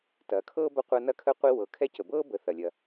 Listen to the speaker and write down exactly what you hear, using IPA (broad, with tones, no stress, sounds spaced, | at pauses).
t ɐː˩˧ kʰ ɤː˥ b ɐ˧˥ qʷ ɐː˧ n ɐ˧˥ kʰ ə˧˥ qʷ i˧ w ɤ˩˧ kʰ ɛ˧˥ c ə˩ b ɤː˥ b ə˩˧ θ ɐ˩ lʲ ɐ˩